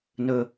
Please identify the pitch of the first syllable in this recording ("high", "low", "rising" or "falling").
high